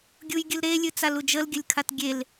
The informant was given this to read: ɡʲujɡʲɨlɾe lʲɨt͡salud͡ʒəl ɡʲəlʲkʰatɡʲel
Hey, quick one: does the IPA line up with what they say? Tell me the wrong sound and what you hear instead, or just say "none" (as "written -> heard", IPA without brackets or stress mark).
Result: none